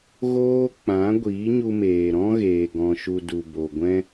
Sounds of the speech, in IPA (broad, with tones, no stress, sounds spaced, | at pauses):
ɣ oː˦ k͡p ã˨˦ ɡʷ iː˨˦ ɲ u˧ m eː˨ ɾ ɔ̃˦ ɣ eː˨ ɡ ɔ̃˨ ʃ u˨ d u˨ b o˨ ɡʷ ɛ̃˦